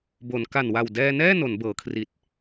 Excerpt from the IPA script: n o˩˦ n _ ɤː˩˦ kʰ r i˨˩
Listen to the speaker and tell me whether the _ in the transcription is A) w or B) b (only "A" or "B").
B